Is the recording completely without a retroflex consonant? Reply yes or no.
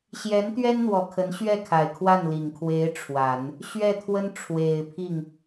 no